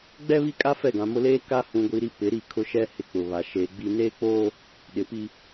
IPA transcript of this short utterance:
ɡ͡b ɛ˦ β i˦ kʼ a˦ f ɛ˦˨ ɡ ã˨ m ʊ˦ l eː˦ k a˦ h ũ˨ ɡʷ i˨ ɾ i˦ p ɪ˨˦ ɾ i˦˨ kʰ ʊ˦ ʃ ɛ˦ h ɪ˦ k͡p ʊ˨ β a˨ ʃ eː˨ ɡ͡b i˦ n eː˦ k͡p oː˦ | ɗ ɪ˨ p i˦

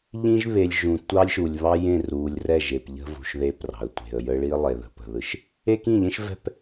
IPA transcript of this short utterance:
ʎ ĩ˦ ʒ β e˨ lʲ ʒ ũ˨ tʷ ɑ˦ lʲ ʃ u˨ lʲ β ɑ˦ j ẽ˦˨ r u˨ lʲ r ɛ˦˨ ʒ e˨ p ʎ ə̤˦ v ṳ˨ ʃ ð e˦ p r ɑ̤˨ ə̯ tʷ e̤˨ ə̯ j ə˦ ɭ i˦ lˠ e˨ ð ə̤˨ p ə̤˨ ð ɯ˦ ʃ | e˦ k ĩ˦˨ ʎ ẽ˦ ʃ v ɛ̤˦˨ p

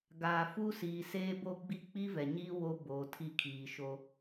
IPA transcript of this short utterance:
ɡ aː˨ f u˦ s iː˨ s eː˦ b o˦ ɡ͡b i˦ k͡p i˦ v ɛ˨ ɲ iː˦ w o˦ b oː˨ tʰ i˦˨ kʰ iː˨ ʃ o˦

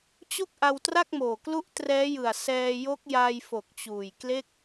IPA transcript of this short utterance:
t͡ɕ o˥˩ k̚ ʔ a˧ w t r a˥˩ k̚ m oː˨˩ k l u˦˥ ʔ t r ɛː˦˥ j ɯ˨˩ a̯ s ɛː˧ j o˦˥ k̚ j a˧ j f o˨˩ k̚ t͡ɕ uː˨˩ j k l e˥˩ k̚

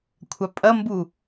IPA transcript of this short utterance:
kʷʰ a pʼ ɐ m b u

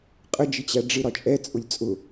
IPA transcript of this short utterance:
qʼ ə d͡ʒ ɪ t͡ɕ æ ɖ͡ʐ ɪ ɾ ɒ t͡ʃʼ ɛ t͡sʼ ʊ lʲ t͡sʼ ʊ

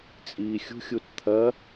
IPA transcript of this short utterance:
t͡sʼ iː xʲ ṳ xʲ u t t̪ʰ ɐ

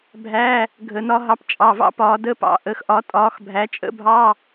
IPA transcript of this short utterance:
bʱ æ˧˥˧ | ɡʱ ə˧˩˧ n ɒ˦˥ ɦ ɑ˨˦ p t͡ʃʼ ɑ˩˧˩ v ɑ̰˦˥ p ɒː˨˦ d ə˧˥˧ p ɑ̰˨˦ ʔ ə˨˦ x ʔ ɒ˨˦ tʼ ɒː˨˦ x bʱ æ˨˦ t͡ʃʼ ə̰˦˥ bʱ ɑ˧˥˧

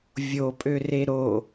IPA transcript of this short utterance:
vʲ o pʼ ø r e ɾ o

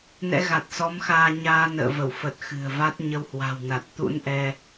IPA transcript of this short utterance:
n ɛ̰˧˥ ɣ a˨˩ t̚ s ɔ˨˦ m x aː˧ ɲ aː˧ n ə̰ː˧˨ v ə˧˩ w f ə˨˩ t̚ x ɨ̤˨˩ ə̯ v a˦˥ t̚ ɲ ə˧ w h w a̤˨˩ w n a˨˩ t̚ t̪ ṵ˧˥ n ʔ ɛ˧

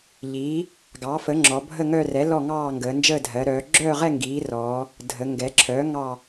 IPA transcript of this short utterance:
ʎ iː˩˥ | ɡ ɑ˩˥ f ə˩˥ ŋ͡ǁ ɔ˩˧ bʱ ə˥˧ ŋ œ˥˧ r ɛ˩˥ l ɔ˥˧ ŋ ɑː˥˧ ŋ ɡ əː˩˧ n d͡ʒ əː˥˧ dʱ ɜ˩˧ ɾ œː˩˧ ɡ͡ǁ œː˥˧ ʁ ɛ˥˧ ŋ ɡ iː˩˧ r ɔː˩˧ | dʱ ə˩˧ ŋ ɡ ɛ˩˧ ǁʰ œː˩˥ ŋ ɑ˥˧

